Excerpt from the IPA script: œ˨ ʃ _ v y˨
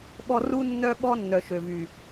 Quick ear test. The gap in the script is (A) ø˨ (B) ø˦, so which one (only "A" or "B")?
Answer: A